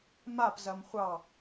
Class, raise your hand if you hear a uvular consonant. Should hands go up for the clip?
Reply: yes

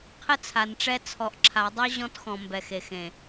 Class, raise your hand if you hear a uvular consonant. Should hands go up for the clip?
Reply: yes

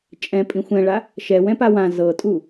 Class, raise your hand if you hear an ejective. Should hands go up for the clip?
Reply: yes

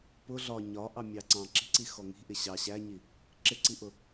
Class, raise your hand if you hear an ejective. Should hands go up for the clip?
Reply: no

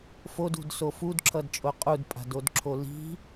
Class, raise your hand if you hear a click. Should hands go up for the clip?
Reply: yes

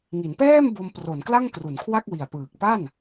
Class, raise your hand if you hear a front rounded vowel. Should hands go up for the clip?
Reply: no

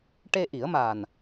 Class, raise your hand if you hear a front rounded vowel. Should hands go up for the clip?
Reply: no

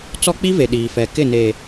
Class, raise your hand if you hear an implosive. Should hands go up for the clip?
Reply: yes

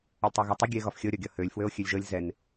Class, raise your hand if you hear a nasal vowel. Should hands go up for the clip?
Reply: no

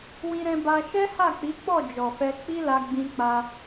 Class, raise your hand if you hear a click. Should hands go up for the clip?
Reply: no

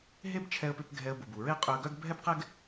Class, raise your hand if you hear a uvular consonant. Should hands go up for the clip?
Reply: yes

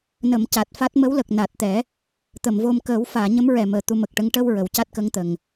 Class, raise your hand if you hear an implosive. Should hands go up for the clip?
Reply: no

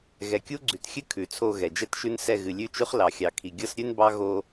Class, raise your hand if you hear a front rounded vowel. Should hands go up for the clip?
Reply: no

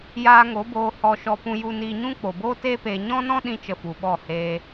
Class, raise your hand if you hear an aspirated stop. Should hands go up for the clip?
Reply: no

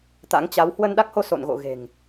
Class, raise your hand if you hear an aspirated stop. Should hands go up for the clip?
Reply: no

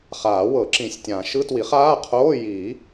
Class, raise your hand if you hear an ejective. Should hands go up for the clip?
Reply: no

